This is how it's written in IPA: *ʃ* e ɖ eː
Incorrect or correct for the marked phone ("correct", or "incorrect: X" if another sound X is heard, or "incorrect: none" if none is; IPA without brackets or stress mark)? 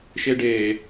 correct